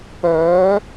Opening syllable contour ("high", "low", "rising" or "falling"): rising